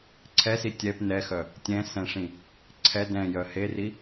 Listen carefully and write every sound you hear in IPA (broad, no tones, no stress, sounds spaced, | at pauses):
ǀʰ ɛ s i tʲ ɛ p n ɛ x œ | tʲ ɛ̃ s ɛ̃ ʂ ĩ | ǀʰ ɛ d ɛ̃ j œ h e r i